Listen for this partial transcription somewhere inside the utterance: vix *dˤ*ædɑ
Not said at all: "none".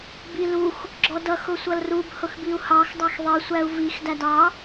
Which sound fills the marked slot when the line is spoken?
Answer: d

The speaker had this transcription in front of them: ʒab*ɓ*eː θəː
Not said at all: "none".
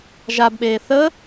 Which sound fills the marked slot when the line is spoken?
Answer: ɓ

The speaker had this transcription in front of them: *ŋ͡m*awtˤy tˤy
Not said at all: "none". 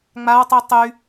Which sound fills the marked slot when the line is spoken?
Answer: ŋ͡m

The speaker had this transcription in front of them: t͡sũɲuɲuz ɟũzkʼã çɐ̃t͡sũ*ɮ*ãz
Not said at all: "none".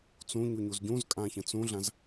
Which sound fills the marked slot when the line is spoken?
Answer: ɮ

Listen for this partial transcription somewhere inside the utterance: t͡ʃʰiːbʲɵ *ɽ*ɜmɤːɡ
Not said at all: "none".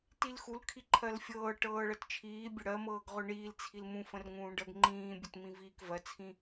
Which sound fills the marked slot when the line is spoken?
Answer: ɽ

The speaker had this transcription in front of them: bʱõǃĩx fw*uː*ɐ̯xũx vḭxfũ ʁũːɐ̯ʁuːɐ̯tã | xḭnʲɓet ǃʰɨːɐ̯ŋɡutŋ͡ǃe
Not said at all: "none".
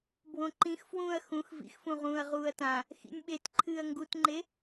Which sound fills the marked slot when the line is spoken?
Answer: ũː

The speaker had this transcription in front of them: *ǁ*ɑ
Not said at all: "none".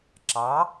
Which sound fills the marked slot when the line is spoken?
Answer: ǁ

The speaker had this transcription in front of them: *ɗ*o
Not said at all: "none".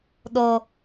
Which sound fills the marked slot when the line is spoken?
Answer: ɗ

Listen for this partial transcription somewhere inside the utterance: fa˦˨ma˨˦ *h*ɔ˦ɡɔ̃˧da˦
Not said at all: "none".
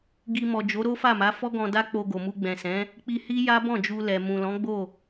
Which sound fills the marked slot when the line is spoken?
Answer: f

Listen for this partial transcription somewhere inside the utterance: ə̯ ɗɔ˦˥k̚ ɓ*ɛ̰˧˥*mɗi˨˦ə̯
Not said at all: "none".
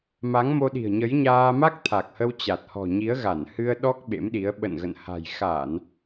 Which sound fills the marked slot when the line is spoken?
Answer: ḛ˧˥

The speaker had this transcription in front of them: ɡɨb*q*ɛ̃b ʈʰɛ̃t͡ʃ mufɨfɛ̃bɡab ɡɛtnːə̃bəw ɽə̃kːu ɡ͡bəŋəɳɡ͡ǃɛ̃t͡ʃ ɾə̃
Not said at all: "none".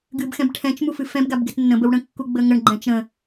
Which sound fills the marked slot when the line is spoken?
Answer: x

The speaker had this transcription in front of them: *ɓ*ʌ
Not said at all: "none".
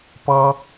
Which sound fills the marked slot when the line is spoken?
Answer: p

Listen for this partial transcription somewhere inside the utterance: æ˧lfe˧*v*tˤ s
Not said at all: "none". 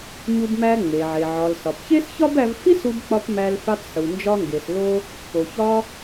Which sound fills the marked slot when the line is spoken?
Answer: none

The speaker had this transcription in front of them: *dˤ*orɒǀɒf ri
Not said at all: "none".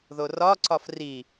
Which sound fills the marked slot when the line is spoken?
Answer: ð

